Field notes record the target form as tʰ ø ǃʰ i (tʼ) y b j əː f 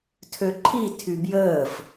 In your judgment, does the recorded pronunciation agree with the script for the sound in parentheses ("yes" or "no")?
no